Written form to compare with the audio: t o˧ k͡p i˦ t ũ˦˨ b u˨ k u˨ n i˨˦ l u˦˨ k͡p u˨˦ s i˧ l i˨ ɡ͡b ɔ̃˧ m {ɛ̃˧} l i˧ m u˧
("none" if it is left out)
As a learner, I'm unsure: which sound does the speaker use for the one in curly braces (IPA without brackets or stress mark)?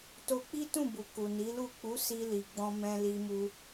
ɛ̃˧